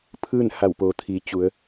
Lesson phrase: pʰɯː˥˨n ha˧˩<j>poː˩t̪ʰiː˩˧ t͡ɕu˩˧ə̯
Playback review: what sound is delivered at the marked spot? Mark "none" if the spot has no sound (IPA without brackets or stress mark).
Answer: w